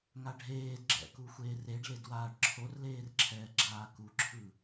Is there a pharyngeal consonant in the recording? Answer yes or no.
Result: no